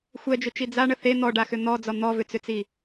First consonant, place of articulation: velar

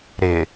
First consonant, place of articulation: alveolar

